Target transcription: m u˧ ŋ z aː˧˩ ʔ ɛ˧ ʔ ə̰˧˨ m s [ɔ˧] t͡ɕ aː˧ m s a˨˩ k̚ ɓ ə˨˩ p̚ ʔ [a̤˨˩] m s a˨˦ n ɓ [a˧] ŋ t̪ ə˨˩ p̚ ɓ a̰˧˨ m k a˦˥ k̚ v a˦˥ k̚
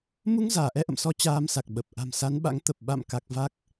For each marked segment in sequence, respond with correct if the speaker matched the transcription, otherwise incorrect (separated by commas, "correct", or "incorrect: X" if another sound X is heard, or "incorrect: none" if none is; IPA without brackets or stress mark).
correct, correct, incorrect: a̰˧˥